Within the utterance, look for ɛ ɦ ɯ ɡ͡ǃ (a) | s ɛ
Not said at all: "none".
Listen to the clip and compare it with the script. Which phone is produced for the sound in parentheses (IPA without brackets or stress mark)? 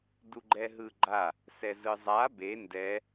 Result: a